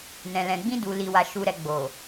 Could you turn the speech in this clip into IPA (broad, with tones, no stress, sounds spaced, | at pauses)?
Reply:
n ɛ̃˨ l ɛ̃˨ ɡ͡b ĩ˧ d u˨ l i˨ w a˨ ʃ u˨ ɾ ɛ˨ ɡ͡b o˨